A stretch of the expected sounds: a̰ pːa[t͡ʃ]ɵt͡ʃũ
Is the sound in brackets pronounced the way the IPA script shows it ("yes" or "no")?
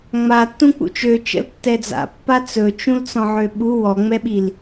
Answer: no